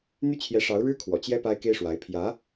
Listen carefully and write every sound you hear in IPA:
n̪ y˥˩ t͡ɕʰ j ɛ˧˥ ʂ ɑ˧˥ ʊ̯ ɻ ɻ̩˥ kʰ w ɔ̰˨˩ t͡ɕ j ɛ˥ p a˥ ɪ̯ k e˥ ɪ̯ ʂ w a˧˥ ɪ̯ pʰ j ä˧˥

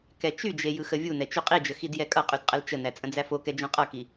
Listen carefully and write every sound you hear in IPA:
k ɛ t͡ʃ y d͡ʒ e j ɯ x ə vʲ u n ɛ t͡ʃ y qʼ i d͡ʒ ə x i d j ɛ kʼ ʌ qʼ y d qʼ ə l t͡ʃ ə n æ t͡sʼ ə̃ d͡z æ f o k ɛ d͡ʒ õ qʼ ʌ k i

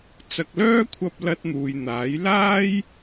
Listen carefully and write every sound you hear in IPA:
t͡s ɐ˨ k̚ l œː˥ kʷʰ ɐ˧ p̚ l ɐ˧ t̚ n̪ uː˨ j n̪ aː˨˥ j l aː˥ j

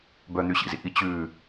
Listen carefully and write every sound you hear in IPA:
b œ n̪ y ɕ ḭ z ḭ ʔ i t͡ɕ ʉ

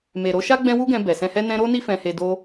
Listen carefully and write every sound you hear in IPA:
m e˨ ɾ o˧ ʃ a˦ ɡ͡b ɛ̃˦ w u˦ ɡ ɛ̃˧ b ɛ˨ s ɛ̃˧ h ɛ˦ n ɛ̃˦ ɾ o˦ n i˦ f ɛ̃˧ h e˧ d o˦

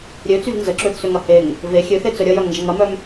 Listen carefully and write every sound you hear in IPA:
ɾʲ ø t͡s y v n z ə ǁ ø θ s ø ŋ ɐ h e ŋ | v e xʲ ø θ e t͡s œ ɾʲ ɐ j œ ŋ n d͡ʒ ɐ ŋ ɐ m œ m

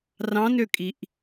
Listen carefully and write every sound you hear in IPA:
r ɑ̃ n ø kʼ i ʔ

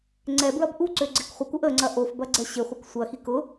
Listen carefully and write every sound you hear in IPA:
ŋ͡ǀ ɛ b ɹ ɐ b ʔ u ǀ ø ɡ͡ǀ ɪ k χʷ ə k u ʔ ə ŋ͡ǀ ɐ ʔ o f b ɐ ɡ͡ǀ ɛ ɕ ɪ χʷ ə k sʷ ɐ x i k ʊ

